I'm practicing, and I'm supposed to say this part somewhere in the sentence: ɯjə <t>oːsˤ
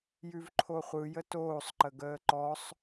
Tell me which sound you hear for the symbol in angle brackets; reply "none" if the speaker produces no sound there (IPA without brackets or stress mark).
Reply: t